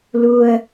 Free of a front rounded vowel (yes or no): yes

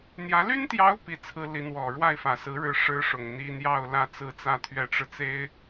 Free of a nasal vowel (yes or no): yes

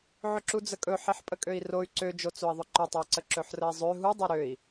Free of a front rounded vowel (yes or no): no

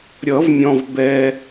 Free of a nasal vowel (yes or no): no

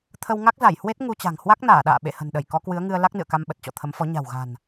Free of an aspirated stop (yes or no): no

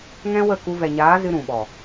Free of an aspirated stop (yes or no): yes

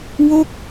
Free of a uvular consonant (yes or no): yes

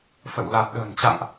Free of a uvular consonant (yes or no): yes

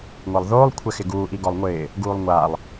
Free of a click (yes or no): yes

